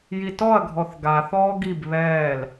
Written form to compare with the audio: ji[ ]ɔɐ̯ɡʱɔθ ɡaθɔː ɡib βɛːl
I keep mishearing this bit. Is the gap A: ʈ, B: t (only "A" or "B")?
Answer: B